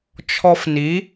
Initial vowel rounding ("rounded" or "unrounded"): rounded